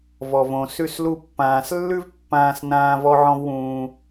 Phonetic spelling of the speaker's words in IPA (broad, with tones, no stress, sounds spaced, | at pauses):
v ɔ˩ v õ˩ s ʉ˧ s l u˧ pː ãː˩ s lː ʉ˥ v pː ãː˧ s n ãː˧ v ɔ˧ ʕ ɔ̃˧ v w ũː˩